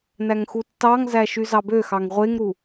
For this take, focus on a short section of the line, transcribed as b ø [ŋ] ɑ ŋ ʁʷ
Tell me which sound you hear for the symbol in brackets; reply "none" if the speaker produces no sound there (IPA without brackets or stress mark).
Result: x